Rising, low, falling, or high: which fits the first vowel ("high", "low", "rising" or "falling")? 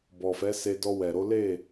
low